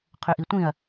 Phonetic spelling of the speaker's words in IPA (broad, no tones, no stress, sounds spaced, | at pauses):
qʰ ʏ ʔ i tʷ ĩ ɐ̯